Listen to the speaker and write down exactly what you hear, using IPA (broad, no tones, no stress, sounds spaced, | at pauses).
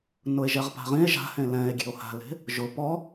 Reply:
n ʊ e̯ ʒ ɛ ʁ p a̤ ʁ ĩ e̯ ʒ a̤ h ẽ l ɛ̃ e̯ ɡʲ e̤ o̯ h a̤ l e̤ | ʒ ʊ p ɔ